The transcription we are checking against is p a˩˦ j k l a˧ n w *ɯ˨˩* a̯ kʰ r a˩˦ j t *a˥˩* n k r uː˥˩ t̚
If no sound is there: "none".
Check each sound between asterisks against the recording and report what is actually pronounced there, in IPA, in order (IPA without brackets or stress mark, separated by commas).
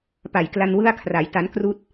ɯ˥˩, a˦˥